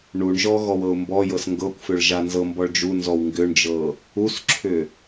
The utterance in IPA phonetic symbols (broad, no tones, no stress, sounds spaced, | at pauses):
ɳ u ɳ ʒ ɔ ɣ ɔ w ɤ ʊ̯ m b ɔ j ɤ s ŋ ɡ ɤ kʷ f ʏ ɭ ʒ a n z ɤ m b ɔ ɭ d͡ʒ u n z ɔ w ŋ ɡ ʏ ɳ d͡ʒ ɤ | u s ǁʰ ʏ